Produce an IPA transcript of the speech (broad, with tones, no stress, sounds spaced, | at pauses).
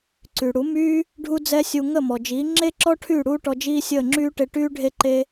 ǀ y˩ ɽ u˩˥ m yː˥ | ɖʱ u˥ d͡z ɛ˥ sʲ u˧ ŋ ə˥˩ m ɔ˩ d͡ʒ iː˩˥ ŋ͡ǁ e˥ ǁ ɔ˥ ʈʰ y˥˩ ɽ uː˥ ʈ ɔ˧ d͡ʒ iː˥ sʲ əː˥˩ ŋ͡ǁ yː˥ ʈ e˧ ʈ yː˥ ɖʱ e˥ ǃ e˥